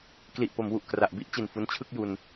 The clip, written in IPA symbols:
k l i˨˩ ʔ p o˩˦ m w u˨˩ ʔ k r a˨˩ ʔ b i˥˩ ʔ t͡ɕ i˨˩ n f u˦˥ n t͡ɕʰ ɯ˥˩ k̚ j u˧ n

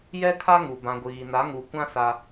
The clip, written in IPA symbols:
j ɛ˦ kʰ a˦ ŋ u˨ b ã˨ ɡʷ iː˨ n a˨˦ ŋ u˨ kʷ ã˦ s a˦

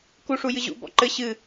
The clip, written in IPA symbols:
k u ʂ u j ɨ ʑ ṵ b ɔ̰ ǃ ɘ ɕ ɨ

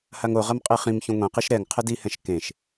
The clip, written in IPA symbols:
h a ŋ o ʁ ɐ m qʼ i χ ĩ m ç ũ ŋʷ ẽ q i ʃ ɾ ɛ ŋ qʰ ɘ d i h ɛ̃ ʃ k ẽ ʃ

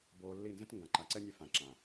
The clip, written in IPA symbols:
b oː˧ lː i˦˨ n z ə̃˦ t ŋ ɡ ã˨ ǃ a˨ ǀ ɛ˦ nʲ ɛ˧ f ã˨ ǁ ãː˨

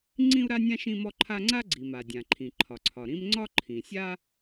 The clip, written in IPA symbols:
ŋ͡ǀ ĩ˥ u̯ ɾ a˥ nʲ ã˥ ʃ ĩ˥ m ɔ˥ ǃʰ a˥ ŋ͡ǀ a˥ ɡ͡ǀ i˩ m a˩ dʲ ã˩ ǃʰ ĩ˩ ǃʰ ɒ˩ ǀʰ ɒ˩ ɾ ĩ˥ m ŋ͡ǀ ɒ˥ ǃʰ ĩ˩ sʲ a˥

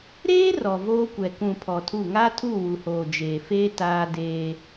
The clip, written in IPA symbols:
ɾ eː˦ r ɔ˨ v oː˦ kʷ ɛ˨ k ũ˨ pʰ ɔ˨ tʰ u˦˨ ŋ a˦ tʰ u˦˨ w u˨ h oː˨ d͡ʒ eː˨ f eː˦ t aː˦ d eː˦

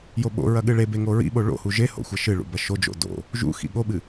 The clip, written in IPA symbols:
j o ɓ o̰ ɹ ɐ ɠ ɨ ɭ e b e ŋ o ɹ ḭ ɓ o ɭ o̰ h u ʒ e h o̰ xʷ ɐ ʃ ɨ ɭ ṵ b ɐ ʃ o d͡ʒ o̰ d o̰ | ʒ ṵ x ḭ ɠ o ɓ ɨ

